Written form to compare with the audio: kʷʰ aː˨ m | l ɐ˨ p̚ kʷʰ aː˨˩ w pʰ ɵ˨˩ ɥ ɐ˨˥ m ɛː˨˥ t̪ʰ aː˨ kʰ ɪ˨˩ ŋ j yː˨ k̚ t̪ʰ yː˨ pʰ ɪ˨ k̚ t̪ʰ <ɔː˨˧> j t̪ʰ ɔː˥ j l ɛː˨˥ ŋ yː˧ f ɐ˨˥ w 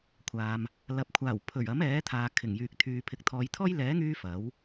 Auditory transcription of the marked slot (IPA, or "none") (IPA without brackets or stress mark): ɔː˨˧